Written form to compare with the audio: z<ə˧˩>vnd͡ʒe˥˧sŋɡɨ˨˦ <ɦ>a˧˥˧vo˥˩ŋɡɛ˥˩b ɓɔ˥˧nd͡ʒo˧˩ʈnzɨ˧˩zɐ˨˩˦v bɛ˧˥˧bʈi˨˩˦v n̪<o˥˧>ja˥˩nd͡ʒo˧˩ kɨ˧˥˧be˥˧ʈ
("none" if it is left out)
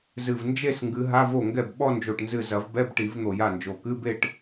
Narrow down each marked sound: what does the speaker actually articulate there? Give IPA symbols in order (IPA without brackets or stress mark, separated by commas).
ɨ˧˩, ɦ, o˧˩